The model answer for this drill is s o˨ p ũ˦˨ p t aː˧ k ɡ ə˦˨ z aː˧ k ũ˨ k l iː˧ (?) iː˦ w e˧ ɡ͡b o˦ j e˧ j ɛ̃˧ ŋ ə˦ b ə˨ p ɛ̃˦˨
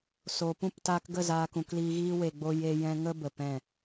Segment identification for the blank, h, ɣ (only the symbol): ɣ